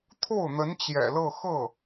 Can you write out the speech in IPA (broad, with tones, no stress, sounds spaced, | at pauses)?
t̪ʰ o˥˩ ʊ̯ n̪ ə˧˥ n t͡ɕ j ɛ̰˨˩ l ɤ˥˧ x ɤ˥˩